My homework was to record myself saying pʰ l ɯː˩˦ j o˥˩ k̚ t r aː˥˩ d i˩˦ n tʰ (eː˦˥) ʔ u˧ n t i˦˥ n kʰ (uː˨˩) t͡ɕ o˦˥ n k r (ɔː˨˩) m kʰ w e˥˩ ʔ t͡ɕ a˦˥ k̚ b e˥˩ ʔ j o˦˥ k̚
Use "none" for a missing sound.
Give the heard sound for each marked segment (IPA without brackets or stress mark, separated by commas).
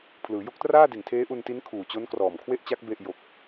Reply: eː˦˥, uː˨˩, ɔː˨˩